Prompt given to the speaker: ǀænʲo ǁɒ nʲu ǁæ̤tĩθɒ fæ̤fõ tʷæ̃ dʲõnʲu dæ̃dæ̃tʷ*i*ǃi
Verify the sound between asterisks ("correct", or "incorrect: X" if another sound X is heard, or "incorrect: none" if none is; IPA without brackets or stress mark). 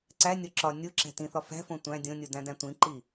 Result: incorrect: ĩ